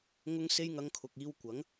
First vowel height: high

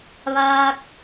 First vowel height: low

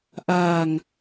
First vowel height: low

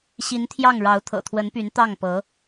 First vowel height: high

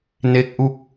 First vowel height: mid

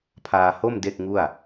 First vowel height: low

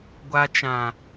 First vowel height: low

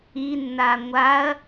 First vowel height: high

